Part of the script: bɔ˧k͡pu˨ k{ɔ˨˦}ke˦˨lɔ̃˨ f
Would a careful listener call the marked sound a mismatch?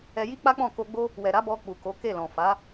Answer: yes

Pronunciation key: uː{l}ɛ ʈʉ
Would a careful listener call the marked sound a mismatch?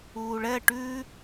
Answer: yes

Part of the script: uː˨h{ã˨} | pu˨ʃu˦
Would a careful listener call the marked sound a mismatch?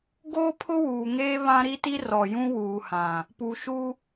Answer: no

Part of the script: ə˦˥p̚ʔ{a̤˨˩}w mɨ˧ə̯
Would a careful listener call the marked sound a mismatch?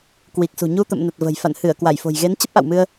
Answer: yes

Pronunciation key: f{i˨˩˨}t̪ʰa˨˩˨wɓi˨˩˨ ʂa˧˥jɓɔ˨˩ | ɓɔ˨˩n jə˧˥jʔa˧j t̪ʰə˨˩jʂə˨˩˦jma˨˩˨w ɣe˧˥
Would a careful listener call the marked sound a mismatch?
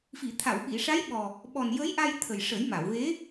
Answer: no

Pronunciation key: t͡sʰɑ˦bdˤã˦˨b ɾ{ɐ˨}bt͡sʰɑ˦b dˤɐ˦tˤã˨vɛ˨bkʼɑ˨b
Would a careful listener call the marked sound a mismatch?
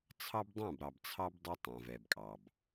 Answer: yes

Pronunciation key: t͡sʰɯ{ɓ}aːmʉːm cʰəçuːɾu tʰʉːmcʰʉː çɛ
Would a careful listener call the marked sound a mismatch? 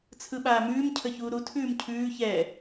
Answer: no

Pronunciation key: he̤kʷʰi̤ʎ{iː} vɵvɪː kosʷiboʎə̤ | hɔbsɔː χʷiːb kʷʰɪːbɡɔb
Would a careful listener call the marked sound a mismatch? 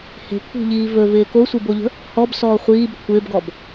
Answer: no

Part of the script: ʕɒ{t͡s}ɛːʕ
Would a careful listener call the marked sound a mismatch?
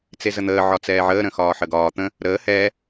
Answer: no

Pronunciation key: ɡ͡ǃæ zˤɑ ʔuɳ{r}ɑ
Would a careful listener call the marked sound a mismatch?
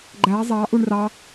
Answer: no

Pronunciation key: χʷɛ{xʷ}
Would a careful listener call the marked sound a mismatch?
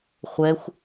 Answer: no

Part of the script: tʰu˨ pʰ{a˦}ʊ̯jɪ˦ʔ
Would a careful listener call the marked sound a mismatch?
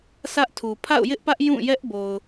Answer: yes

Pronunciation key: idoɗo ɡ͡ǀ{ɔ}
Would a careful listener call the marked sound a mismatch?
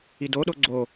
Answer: yes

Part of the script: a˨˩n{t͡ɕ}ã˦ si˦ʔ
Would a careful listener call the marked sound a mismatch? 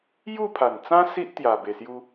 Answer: yes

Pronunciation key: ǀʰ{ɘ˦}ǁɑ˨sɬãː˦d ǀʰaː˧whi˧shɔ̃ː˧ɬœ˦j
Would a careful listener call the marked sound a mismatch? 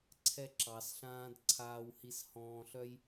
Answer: yes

